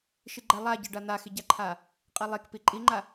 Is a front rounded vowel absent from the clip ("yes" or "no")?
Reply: yes